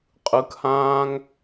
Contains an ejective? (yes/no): yes